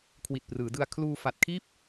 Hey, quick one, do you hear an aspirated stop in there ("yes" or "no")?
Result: yes